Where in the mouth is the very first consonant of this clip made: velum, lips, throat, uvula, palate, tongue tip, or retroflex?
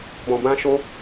lips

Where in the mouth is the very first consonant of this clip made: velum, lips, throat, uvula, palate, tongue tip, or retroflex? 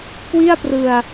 velum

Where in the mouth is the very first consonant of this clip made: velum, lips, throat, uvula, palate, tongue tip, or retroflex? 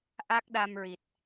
throat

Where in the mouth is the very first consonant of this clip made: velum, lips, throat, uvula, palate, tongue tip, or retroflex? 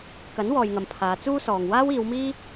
velum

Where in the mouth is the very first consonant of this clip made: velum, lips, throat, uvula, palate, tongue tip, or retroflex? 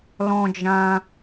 tongue tip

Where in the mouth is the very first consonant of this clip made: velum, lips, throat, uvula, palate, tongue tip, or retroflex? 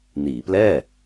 tongue tip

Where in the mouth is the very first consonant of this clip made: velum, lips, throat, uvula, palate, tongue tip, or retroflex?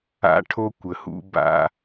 retroflex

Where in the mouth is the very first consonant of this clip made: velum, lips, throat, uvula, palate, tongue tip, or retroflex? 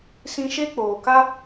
tongue tip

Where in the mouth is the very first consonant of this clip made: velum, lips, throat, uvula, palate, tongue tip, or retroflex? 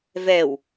lips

